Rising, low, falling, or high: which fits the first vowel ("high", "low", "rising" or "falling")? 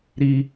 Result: high